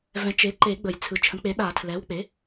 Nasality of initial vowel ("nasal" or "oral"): nasal